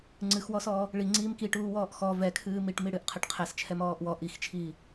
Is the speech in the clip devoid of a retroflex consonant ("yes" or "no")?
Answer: no